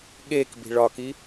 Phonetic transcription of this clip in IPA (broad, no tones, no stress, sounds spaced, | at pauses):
ɠ e k b i̤ ɭ ɒ k i